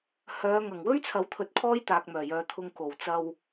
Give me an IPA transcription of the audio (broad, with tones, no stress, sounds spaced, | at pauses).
h œː˨˧ ŋ ɐ˨˩ ŋ w ɵ˥ ɥ t͡sʰ ɐ˨˥ w t̪ʰ ɵ˨ t̚ kʰ ɔː˥ j t̪ aː˨ k̚ m œː˨˩ j œː˨ t̪ʰ ʊ˧ ŋ k o˨˩ w t͡s ɐ˧ w